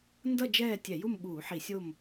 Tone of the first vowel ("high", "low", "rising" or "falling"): falling